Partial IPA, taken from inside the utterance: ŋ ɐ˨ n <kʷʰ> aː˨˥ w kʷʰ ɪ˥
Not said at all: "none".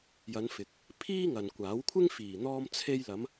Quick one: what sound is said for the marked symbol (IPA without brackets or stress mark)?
kʷ